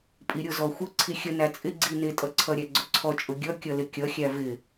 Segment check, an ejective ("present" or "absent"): present